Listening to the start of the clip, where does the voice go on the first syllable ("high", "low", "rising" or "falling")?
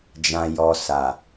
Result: low